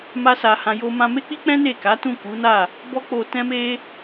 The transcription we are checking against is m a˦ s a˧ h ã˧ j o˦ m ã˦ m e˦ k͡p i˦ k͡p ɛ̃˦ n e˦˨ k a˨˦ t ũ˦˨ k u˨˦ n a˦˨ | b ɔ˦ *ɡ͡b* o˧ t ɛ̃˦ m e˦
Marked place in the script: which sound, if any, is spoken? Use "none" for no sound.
k͡p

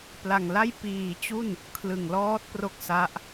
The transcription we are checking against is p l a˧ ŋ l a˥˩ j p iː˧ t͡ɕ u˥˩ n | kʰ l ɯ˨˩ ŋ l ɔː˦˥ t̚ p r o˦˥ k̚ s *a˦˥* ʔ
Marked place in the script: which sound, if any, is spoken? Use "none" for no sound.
a˦˥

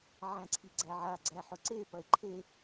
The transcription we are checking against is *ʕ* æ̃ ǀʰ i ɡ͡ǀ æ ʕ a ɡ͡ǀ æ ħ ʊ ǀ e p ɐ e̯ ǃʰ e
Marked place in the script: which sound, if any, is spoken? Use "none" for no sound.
ʕ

